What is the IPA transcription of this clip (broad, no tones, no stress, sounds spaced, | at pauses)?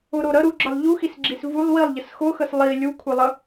ʊ ɾ o ɾ ə ɾ u ɡ͡ǁ ə lˠ ʎ u x i s ɡ͡ǁ i s v u lˠ w i lˠ ʎ ə s x ʊ x ə s lˠ i lʲ u kʷʰ ɛ lˠ ə